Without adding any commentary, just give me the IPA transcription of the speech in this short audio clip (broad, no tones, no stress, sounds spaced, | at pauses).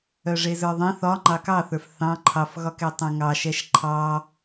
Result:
œ ʐ e z ə˞ ðˤ ẽ θ ɒ ŋ͡ǃ ɑ k ɑ θ ə˞ f θ ɑ̃ ǃʰ ɑ f ɣ ɒ k ɛ tˤ ɛ̃ ŋ ɑ ʃ ɛ ʃ ǃʰ ɑ